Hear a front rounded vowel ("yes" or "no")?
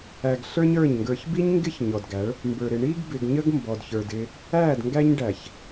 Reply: no